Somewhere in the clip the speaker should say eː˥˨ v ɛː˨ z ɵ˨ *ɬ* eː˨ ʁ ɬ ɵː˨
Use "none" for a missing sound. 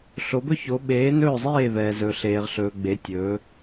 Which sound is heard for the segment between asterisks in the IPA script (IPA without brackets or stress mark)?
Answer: ɬ